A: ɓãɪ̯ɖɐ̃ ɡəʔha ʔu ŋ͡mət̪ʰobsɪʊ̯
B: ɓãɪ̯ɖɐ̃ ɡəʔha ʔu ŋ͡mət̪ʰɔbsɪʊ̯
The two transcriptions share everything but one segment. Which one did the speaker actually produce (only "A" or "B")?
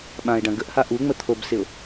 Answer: A